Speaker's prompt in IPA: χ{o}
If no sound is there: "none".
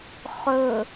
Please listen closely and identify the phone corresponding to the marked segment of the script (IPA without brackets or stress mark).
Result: ɵ